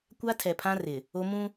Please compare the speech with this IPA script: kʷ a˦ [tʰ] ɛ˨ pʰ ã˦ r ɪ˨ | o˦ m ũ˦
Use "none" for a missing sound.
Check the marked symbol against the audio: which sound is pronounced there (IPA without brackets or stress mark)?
tʰ